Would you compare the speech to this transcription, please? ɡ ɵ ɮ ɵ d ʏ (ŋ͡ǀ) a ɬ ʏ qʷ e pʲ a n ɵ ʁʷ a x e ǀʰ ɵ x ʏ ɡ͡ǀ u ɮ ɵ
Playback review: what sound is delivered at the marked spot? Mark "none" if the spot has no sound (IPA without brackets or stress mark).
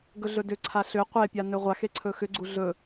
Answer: ǀʰ